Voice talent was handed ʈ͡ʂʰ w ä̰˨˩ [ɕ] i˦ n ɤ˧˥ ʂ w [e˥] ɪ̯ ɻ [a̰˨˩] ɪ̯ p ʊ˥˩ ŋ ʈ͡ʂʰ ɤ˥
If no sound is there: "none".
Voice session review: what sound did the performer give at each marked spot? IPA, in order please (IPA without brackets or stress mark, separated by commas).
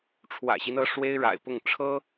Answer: ɕ, e˥, a̰˨˩